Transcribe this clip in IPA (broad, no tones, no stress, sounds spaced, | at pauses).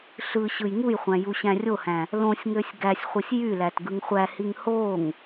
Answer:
ɬ ɯ ɕ ɯ j ŋ u j χʷ æ̃ j u ɕ æ̃ rʲ o h æ̃ | l õ sʲ ŋ ø sʲ ɡ æ sʲ χʷ ɯ sʲ j y l æ t ɡ ɯ ŋ χʷ æ h i ŋ h o ŋ